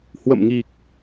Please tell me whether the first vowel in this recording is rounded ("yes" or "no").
no